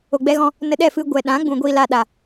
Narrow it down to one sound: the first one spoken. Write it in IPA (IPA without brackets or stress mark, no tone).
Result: o